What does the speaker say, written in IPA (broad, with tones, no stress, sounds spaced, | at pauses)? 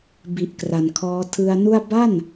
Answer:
b i˨˩ ʔ k r a˨˩ n kʰ ɔː˦˥ tʰ ɯ˧ a̯ n u˥˩ a̯ b a˥˩ n